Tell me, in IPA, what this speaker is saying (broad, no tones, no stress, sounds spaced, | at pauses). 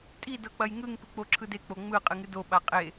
tʼ i d ɤ k͡p ɐ j ŋ ɯ ŋ p ɨ k͡p o ǁʰ ɯ d e k͡p o ŋ͡m ɯ qʼ ɨ ŋ ɨ d o ɓ a qʼ e